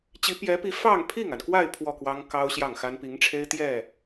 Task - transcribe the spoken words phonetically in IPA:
t͡ɕi˧˥pjɛ˧˥pi˧˥ fɑ˥˧ŋpʰi˥˩ŋa˩nkwa˥˧ɪ̯ pʰwɔ˥˩kwɑ˥ŋ kɑ˥ʊ̯ɕjɑ˥˩ŋxa˥n pi˧˥ŋʈ͡ʂʰe˥ɪ̯ t̪jɛ˥˩

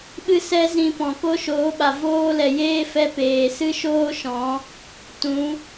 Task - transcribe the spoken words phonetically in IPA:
ɓɨ˦sɛ˦zĩ˧ pɔ̃˨ ko˦ʃoː˨˦ɓa˨ voː˦lɛ˨jeː˦fɛ˧ peː˨sɨ˦ʃoː˦ʃɔ̃˨˦ | tũ˨˦

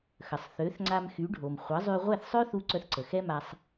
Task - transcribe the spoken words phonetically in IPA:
xə˩sˤθø˩˥θŋ͡ǀa˧m xy˩˥ɖʱo˩m χʷə˩˥zˤy˧ ʁʷɛ˥˩θsˤø˥θu˧ ǀœ˧θǀə˩ xɛ˥ma˧sˤ

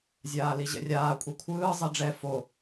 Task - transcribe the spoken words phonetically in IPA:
zʲaːliʑɛ̰rʲaː kʷʼikʷʰɯː zˤɛɖ͡ʐɛ fo

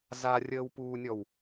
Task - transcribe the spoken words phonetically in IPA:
zarʲəːwpuːnʲɔw

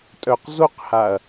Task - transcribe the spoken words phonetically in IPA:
tʼœqzoqhaɐ̯

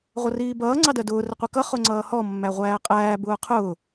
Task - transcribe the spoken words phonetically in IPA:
ʁʷʌriːbʌː ŋ͡ǀɑdɜdʊː rəqʷikʌ χʊŋ͡ǀʌːhɔ mːæʁʷæːqʼæː bʊːqʰʊː

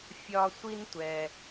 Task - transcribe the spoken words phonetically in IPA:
fʲɒ˥ sʷi˥ntʷɛ˧

